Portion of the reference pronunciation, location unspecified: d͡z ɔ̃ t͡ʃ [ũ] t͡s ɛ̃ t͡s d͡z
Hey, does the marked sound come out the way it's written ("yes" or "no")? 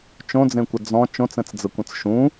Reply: no